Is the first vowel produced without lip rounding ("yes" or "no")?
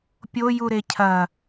no